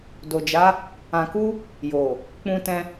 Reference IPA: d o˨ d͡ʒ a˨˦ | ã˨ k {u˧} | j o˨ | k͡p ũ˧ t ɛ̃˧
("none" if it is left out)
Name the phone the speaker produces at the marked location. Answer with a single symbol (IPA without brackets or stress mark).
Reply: u˧